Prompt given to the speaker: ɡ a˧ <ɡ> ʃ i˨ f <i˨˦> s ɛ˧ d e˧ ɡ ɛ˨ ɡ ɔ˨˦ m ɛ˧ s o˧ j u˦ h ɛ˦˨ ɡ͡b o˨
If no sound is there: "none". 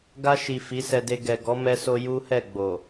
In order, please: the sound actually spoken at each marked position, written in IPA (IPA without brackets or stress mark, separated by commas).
none, i˨˦